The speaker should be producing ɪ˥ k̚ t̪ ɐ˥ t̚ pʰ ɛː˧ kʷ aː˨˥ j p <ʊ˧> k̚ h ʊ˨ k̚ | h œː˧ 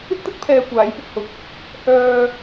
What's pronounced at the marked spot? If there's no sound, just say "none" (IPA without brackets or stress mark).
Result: ʊ˧